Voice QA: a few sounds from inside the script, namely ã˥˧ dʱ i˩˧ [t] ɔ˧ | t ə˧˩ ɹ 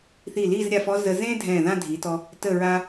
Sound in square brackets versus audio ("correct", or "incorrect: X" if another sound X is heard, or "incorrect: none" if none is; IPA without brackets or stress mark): correct